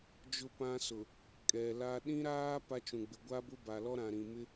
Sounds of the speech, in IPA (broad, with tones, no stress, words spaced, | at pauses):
d͡ʒʊ˦pã˦ sʊ˨ | kʼɛ˨la˦ ɗĩ˦ɾaː˦ pa˦t͡ʃũ˨ɡ͡bɪ˨ ɡʷa˦ bʊ˦ba˨lɔ˦ ɾã˨ɾĩ˨ mɪ˦